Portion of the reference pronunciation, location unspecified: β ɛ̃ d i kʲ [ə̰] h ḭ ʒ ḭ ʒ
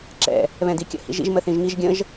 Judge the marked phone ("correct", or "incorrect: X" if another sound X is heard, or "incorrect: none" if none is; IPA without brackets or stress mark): correct